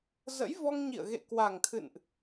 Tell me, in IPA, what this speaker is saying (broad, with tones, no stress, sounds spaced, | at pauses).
z ə̰˧˥ j v ɔ˧ ŋ ɲ ḭ˧˨ ə̯ ɣ ḛ˧˨ k w a˨˩ ŋ t̪ʰ ɨ̰˧˨ n ʔ